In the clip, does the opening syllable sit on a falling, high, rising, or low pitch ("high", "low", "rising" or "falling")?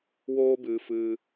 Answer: high